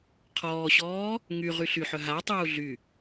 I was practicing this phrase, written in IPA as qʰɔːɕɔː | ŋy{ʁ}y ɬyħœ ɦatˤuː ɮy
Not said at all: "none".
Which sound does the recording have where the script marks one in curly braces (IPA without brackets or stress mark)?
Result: ʁ